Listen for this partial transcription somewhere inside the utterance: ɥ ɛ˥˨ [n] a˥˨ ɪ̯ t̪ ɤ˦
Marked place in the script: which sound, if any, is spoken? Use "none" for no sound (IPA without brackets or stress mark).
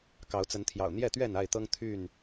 n